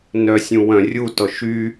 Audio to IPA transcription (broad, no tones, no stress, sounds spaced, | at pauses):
n œ sʲ ũ w œ̃ rʲ u t ɔ ʃ y